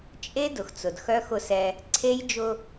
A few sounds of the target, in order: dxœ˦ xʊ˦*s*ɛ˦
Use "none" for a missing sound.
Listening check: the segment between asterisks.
s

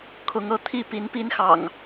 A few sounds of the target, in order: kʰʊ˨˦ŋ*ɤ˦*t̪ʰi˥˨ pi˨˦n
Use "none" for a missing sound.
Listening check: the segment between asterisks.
ɤ˦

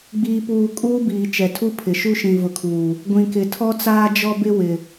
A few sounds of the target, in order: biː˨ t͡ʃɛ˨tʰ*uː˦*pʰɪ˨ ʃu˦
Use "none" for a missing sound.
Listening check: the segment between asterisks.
u˦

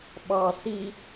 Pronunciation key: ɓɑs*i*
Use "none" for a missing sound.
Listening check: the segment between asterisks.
i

